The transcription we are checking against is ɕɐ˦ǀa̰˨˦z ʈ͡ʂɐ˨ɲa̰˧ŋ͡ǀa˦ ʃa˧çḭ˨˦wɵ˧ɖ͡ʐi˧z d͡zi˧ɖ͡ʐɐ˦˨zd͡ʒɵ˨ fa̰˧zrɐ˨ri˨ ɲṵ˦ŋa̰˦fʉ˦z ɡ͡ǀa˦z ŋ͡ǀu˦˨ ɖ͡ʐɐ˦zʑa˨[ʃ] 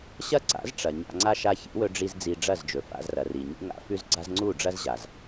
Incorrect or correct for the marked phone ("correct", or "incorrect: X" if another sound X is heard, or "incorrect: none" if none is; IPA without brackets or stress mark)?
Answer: incorrect: z